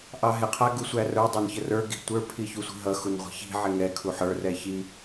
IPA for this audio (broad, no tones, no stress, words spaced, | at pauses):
ʔɑɦɪ qʰæɡusʷærə˞ dˤænçərə˞ ɡi̤ tʷə˞ pʰiçusʷi̤ɦʌ xunʁʷi̤çi̤ ʕɪŋɛ kʰuħə˞ rɛçi